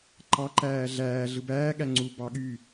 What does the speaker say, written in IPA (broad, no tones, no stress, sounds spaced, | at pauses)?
ǃ ɑ ǃ æː ɮ æː ɮ ɯ b æː ɠ æ ŋ͡ǀ u b ɑ ɠ y